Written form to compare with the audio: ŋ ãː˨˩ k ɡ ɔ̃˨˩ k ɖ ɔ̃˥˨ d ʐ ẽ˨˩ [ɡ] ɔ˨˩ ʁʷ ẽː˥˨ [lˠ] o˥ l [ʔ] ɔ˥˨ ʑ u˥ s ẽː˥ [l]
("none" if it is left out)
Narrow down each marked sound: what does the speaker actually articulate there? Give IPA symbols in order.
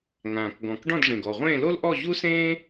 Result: ɡ, l, ʔ, none

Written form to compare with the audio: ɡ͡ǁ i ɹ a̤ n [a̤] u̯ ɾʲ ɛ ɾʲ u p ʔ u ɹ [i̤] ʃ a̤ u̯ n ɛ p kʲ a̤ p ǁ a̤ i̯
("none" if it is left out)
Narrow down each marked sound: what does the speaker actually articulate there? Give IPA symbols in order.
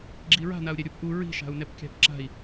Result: a, i̤

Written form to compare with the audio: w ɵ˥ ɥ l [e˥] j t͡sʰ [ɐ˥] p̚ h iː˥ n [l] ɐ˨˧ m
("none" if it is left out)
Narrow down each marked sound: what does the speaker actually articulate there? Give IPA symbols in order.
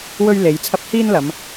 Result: e˨˧, ɐ˥, l

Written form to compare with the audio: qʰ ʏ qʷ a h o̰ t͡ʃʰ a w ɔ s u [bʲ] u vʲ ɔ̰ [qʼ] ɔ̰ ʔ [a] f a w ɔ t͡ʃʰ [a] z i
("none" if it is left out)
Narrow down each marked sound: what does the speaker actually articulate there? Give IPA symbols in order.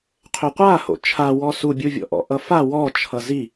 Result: bʲ, ʔ, ʌ, ʌ

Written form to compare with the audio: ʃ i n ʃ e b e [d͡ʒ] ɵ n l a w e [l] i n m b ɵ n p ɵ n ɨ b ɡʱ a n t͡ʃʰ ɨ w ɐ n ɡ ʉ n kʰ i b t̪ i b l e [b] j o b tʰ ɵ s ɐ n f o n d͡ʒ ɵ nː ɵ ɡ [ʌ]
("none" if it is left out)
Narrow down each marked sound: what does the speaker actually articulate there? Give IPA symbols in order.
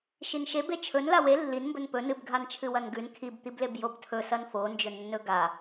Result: t͡ʃʰ, lː, b, a

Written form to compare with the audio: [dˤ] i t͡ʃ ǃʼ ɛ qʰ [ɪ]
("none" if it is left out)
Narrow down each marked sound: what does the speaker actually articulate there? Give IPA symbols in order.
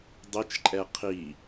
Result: dˤ, i

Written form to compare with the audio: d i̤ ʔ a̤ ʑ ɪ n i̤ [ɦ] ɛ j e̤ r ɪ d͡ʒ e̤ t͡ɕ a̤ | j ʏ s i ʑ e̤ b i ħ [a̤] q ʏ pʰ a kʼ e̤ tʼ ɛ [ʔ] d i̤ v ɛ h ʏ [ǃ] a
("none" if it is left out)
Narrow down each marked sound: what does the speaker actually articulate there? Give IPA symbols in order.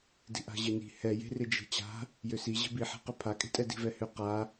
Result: h, a̤, none, q

